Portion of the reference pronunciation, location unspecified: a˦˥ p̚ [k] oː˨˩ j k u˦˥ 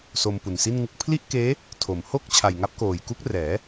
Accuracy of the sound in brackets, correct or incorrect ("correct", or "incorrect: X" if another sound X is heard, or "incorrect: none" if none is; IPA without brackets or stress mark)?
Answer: correct